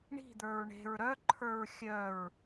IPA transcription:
ɳi̤d̪ə˞ɹ ɳe̤ɹ ɾœǃʰə˞ɹ xʲœɹ

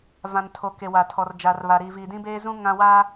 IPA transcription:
vã˨ntʰo˨ ke˨wa˨ tʰɔ˨rd͡ʒa˨rβa˨ɾiː˨ vi˨dĩ˦beː˦zũ˦ ŋã˦waː˦

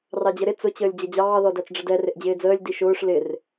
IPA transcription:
rɑd͡ʑəɾɪ t͡sʊt͡ɕəːlʲ d͡ʑʌd͡ʑɑː ðɔdæt͡sɖ͡ʐədɛ rɪʔd͡ʑɪːd͡zəːlʲ diʃʊːʂ lɪr

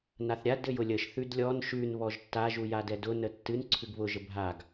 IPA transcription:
naθɾʲad ɘjʊlʲəʃ θʉdlʲɔn ʃʉn βɔʒtːa ʒujadɛdʊ nətːɨn ǀʰʉɡβʊ ʒəbʱaɡ

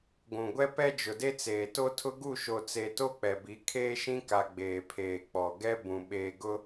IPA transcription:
ɡʷũ˨ɡʷɛ˦ pɛ˦d͡ʒʊ˨de˦ t͡seː˨to˦tʰʊ˦ ɡu˦˨ʃo˨t͡se˨ to˦ k͡pɛ˨bi˨˦ kʰeː˦ʃĩ˦ka˨ ɡ͡beː˨pʰeː˨k͡pɔ˨ ɡɛ˦ bũ˨ ɓeː˨ ɡʊ˦

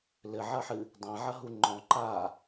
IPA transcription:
lɘʕɐħɨ | dˤãʕɐɦu ŋ͡ǃɔ̃ǃaː

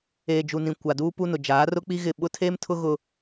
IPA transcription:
eː˨d͡ʒu˨nĩ˨ kʷa˨duː˦pu˦nʊ˨ d͡ʒaː˨˦rʊ˦k͡pi˦ɣɪ˦˨ ɓʊ˦tʰeː˦mtʰʊ˦ ɣʊ˦

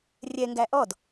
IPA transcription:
rʲɛŋɡæ ʔɔd

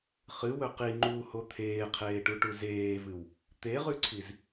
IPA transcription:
χɨwɵ qiŋ͡ǃuːho t̪ʰeːqʰeːʈuʈu zeːvɨw | t̪eʁʉǀʰiz

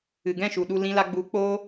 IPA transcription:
ɨ˨ɡɛ̃˦˨ʃu˨ ɗu˧lĩ˧la˧ ɡ͡bu˨˦ k͡poː˧

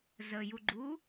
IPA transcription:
zəjuɡ͡ǃu

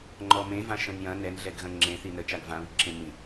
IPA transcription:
ŋ͡ǃɔmẽvã ʃə̃njɐ̃ nɛnɮɛɡɣɐ̃ ŋ͡ǁẽθi nə t͡ʃaɡvãβiǁẽ mĩ

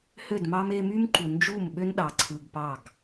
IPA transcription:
hø˦˨dmɑ˦m e˧my˦mǃu˨nd͡ʒu˦˨m ɓø˦nɗɑ˨ ǀʰɯ˧ɡpɑ˦˨ɡ

